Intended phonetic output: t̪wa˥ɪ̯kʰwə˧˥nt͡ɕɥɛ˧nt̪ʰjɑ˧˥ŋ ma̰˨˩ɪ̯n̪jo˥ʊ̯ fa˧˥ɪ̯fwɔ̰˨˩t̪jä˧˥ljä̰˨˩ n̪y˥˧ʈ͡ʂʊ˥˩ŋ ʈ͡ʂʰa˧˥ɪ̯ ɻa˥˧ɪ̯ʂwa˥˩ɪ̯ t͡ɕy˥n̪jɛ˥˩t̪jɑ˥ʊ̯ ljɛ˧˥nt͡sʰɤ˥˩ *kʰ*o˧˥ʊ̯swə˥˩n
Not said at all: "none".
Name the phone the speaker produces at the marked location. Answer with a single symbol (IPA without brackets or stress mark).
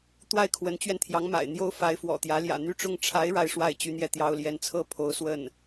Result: pʰ